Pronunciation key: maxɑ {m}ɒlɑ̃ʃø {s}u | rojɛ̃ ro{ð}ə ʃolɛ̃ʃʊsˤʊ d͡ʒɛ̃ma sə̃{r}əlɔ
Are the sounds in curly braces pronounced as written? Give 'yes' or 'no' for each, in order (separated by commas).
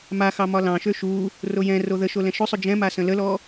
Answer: yes, no, yes, no